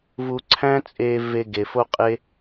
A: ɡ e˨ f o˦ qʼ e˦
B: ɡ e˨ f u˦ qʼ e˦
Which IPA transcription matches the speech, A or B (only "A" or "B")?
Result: A